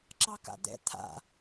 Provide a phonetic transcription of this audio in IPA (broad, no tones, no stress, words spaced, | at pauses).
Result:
ǁɑka̰d̪ɛ̰ t̪ʰa̰